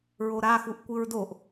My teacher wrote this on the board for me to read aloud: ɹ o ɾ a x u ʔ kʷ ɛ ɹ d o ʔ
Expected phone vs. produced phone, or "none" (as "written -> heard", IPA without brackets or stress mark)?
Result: ɛ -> ɨ